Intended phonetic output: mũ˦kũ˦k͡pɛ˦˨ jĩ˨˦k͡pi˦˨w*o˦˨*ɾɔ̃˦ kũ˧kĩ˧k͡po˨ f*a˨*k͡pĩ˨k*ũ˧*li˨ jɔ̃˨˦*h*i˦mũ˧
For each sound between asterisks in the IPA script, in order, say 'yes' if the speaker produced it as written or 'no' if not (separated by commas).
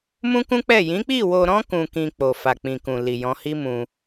no, yes, no, yes